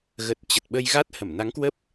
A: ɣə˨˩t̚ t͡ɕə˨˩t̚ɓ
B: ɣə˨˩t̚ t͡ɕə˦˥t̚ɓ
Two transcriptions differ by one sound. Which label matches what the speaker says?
A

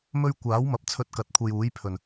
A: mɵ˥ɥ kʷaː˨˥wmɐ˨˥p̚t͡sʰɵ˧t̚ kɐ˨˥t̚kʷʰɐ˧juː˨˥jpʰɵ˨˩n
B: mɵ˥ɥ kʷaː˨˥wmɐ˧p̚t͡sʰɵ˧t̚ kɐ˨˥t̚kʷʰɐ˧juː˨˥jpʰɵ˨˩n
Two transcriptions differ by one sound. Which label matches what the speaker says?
A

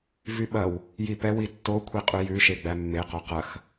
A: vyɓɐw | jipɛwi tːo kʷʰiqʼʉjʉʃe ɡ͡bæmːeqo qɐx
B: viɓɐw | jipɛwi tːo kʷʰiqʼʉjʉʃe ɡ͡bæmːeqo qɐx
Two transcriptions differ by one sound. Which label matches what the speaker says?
A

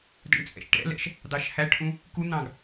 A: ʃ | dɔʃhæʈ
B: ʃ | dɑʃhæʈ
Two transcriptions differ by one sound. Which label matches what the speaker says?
B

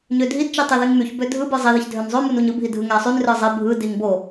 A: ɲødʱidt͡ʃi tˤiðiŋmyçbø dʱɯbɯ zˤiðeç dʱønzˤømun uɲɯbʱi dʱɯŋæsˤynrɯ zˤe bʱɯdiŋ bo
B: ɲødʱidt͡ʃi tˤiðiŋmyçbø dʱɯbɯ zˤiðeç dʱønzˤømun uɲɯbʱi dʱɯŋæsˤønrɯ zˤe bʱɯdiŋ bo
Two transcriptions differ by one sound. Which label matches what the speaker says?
A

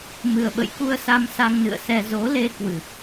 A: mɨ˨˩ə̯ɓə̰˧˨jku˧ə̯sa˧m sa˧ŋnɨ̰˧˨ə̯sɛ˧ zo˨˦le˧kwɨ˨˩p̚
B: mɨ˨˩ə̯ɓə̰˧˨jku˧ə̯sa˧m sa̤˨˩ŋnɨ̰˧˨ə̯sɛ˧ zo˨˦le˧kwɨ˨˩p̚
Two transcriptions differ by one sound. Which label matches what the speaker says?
A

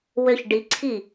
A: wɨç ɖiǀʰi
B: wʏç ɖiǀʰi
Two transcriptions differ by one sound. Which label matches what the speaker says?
B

